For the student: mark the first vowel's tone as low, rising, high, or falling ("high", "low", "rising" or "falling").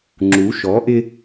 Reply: rising